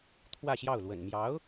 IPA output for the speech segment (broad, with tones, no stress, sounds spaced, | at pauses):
t̪ʰ w ä˥˧ ɕ j ɑ˥˩ ʊ̯ l w ə̰˨˩ n m j ɑ˧˥ ʊ̯